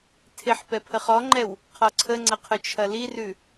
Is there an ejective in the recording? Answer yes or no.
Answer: no